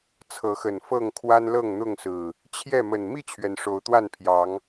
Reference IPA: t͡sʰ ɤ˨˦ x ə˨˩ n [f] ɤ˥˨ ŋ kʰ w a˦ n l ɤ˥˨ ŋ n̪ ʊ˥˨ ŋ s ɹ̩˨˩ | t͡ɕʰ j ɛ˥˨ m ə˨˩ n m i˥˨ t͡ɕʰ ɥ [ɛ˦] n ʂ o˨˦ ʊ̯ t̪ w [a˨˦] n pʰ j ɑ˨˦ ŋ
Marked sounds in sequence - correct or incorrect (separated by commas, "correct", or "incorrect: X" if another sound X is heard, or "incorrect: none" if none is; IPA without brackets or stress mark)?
correct, incorrect: ɛ˩, incorrect: a˥˨